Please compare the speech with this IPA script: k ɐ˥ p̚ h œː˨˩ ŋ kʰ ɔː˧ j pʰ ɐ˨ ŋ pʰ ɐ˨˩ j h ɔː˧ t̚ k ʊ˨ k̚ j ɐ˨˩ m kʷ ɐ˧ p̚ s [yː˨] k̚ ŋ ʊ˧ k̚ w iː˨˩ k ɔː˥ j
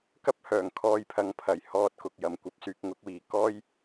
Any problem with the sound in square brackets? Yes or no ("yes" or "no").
no